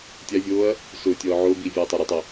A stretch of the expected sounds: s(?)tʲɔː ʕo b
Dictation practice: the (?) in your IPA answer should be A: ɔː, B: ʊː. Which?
B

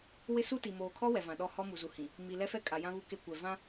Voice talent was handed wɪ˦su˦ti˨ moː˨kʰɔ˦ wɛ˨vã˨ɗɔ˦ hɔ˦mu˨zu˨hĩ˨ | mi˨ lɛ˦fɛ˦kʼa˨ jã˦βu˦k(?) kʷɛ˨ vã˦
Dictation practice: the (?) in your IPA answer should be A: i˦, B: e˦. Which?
B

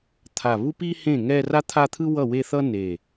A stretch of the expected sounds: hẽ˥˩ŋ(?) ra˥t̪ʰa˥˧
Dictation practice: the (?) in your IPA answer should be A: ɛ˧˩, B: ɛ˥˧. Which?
B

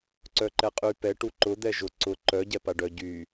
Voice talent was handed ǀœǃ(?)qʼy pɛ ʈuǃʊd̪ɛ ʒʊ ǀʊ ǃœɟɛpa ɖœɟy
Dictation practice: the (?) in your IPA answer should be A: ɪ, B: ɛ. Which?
B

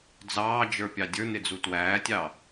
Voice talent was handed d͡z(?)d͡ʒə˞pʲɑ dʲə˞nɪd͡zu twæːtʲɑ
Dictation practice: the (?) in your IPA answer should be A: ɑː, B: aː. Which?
A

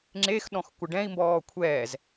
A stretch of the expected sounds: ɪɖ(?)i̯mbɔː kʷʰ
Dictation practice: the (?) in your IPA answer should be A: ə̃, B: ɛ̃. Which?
B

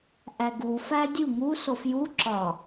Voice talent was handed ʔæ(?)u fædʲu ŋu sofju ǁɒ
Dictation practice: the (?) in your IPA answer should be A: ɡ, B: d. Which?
A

